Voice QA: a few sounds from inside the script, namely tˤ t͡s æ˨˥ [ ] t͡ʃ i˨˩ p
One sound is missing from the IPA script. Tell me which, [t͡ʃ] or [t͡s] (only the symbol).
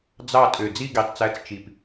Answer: t͡s